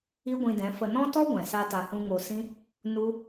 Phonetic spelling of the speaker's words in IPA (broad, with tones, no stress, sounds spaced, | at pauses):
i˦ ɡʷ ĩ˧ d ɛ̃˨˦ f ə˨ n ɔ̃˦ t ɔ˦ ɡʷ ɛ̃˨ s a˧ t a˨ h ũ˧ ŋ o˧ s ĩ˦ | n u˦